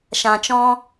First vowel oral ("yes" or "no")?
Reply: no